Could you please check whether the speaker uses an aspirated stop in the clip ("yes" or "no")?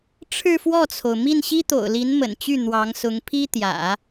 yes